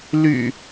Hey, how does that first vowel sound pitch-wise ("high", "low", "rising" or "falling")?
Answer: low